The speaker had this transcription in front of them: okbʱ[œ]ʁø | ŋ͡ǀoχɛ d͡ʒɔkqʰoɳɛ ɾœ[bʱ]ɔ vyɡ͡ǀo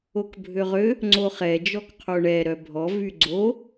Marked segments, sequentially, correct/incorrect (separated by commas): incorrect, correct